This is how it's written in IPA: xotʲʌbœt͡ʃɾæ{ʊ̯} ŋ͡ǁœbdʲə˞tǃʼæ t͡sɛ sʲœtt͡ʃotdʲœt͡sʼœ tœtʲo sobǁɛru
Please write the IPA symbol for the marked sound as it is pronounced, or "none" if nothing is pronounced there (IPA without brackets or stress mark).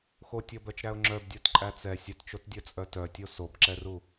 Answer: ʊ̯